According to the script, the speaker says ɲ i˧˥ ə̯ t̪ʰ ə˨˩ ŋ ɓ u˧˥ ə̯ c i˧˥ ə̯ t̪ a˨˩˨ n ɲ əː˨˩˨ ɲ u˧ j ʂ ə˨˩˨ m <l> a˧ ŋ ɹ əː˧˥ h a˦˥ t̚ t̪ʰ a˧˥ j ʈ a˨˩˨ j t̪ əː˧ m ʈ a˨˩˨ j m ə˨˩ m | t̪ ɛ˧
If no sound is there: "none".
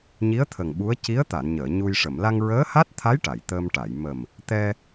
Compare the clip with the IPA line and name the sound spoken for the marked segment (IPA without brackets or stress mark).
l